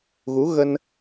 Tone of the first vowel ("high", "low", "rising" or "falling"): rising